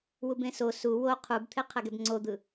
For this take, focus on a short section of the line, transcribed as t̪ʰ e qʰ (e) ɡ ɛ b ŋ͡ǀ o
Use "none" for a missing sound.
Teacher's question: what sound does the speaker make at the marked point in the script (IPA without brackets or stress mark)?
ɛ